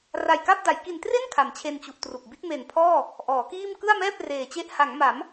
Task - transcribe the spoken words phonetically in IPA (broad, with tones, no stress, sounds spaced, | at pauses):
r a˨˩ j k a˥˩ p̚ d a˩˦ j k i˨˩ n t r e˥˩ n kʰ a˩˦ m t͡ɕʰ e˧ n t͡ɕ u˨˩ ʔ t r u˨˩ k̚ b i˦˥ t̚ m e˨˩ n pʰ ɔː˥˩ | ʔ ɔː˩˦ k iː˥˩ m k ɯ˥˩ a̯ m ɛː˥˩ p̚ r eː˨˩ t͡ɕ e˦˥ ʔ h a˩˦ ŋ m a˩˦ m